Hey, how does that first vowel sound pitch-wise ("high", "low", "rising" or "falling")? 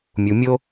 low